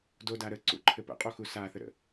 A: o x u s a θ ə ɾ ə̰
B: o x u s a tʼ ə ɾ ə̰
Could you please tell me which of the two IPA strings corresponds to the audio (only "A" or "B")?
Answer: A